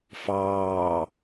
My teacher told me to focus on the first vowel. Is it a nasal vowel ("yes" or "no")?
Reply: no